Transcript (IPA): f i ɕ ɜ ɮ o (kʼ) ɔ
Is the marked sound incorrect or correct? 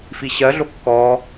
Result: incorrect